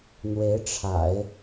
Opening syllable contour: rising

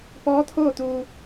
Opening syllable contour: rising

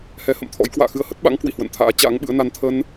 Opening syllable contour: rising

